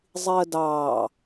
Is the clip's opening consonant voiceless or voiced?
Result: voiced